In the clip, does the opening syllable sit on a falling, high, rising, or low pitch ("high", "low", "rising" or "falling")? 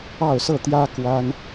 falling